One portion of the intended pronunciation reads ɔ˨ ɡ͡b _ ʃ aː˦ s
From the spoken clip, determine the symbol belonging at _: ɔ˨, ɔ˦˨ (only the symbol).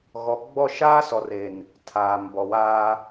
ɔ˦˨